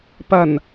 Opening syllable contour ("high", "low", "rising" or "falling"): low